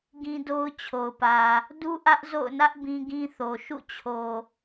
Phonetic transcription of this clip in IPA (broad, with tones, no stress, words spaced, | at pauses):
ɡĩ˦do˦ʊ̯t͡ɕʰo˨ʊ̯pä˨ | du˦ʔä˦ʔ zo̰˦˨ʊ̯nä˦ʔ bĩ˦ɡĩ˦θo˨ ʃṵ˦˨t͡ɕʰo˨